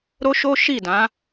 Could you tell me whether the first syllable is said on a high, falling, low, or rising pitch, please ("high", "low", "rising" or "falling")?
high